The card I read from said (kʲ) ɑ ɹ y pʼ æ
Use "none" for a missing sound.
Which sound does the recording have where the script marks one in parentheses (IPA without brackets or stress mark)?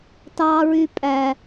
t